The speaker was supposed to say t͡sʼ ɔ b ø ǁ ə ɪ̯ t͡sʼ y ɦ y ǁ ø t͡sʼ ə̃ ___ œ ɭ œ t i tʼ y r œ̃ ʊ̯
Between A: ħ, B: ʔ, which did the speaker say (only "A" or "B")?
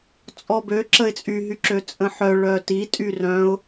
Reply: A